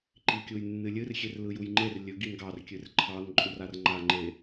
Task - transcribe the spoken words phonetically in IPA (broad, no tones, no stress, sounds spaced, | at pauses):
ǃ i kʲ u j nː ɨ lʲ ɨ r xʲ e r l ɯ j u j ŋ͡ǃ e r lʲ ɵ ɡ i n ɡ ɑ r kʲ ɨ r ǃʰ ɑ n ǃʼ u r a r ŋ͡ǃ a ŋ͡ǃ e